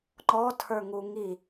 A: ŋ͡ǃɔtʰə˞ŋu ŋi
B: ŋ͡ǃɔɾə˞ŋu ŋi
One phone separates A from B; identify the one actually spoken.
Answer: A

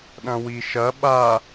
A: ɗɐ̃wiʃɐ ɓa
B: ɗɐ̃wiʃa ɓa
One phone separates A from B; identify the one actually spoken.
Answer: A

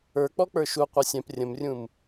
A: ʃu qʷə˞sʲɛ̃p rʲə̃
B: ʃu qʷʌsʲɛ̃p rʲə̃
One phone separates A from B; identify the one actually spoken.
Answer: B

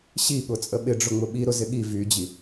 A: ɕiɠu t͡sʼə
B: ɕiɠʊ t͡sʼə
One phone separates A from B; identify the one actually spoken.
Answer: B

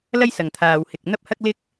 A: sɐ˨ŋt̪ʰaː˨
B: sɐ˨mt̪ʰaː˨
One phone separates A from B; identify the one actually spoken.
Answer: A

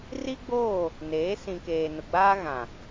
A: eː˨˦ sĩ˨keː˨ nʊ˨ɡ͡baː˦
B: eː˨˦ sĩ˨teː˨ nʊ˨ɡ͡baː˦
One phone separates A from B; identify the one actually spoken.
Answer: A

